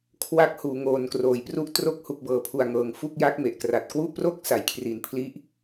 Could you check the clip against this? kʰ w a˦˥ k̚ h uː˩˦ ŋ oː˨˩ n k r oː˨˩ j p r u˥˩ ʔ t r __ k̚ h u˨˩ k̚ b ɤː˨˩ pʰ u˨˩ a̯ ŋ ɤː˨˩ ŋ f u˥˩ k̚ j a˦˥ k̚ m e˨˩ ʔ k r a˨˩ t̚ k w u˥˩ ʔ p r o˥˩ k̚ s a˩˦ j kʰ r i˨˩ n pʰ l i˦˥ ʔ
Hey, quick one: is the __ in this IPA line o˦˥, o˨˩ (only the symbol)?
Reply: o˦˥